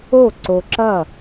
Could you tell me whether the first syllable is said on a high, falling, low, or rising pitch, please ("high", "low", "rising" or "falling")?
falling